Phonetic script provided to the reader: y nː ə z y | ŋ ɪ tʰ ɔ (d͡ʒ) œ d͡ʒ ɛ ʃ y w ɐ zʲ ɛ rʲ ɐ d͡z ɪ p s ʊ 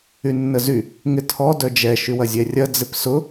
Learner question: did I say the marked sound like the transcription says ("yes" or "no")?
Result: no